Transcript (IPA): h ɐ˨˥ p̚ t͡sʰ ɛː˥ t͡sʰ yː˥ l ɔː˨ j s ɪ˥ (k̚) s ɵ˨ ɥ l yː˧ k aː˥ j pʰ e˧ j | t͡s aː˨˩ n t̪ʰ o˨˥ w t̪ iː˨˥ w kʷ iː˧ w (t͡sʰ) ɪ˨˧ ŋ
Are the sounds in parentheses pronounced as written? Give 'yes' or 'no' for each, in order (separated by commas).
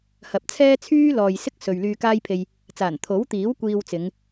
yes, no